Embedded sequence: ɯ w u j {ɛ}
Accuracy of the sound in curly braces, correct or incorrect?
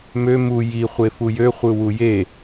incorrect